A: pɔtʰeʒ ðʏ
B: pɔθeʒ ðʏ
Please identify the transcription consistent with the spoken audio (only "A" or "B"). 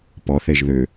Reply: B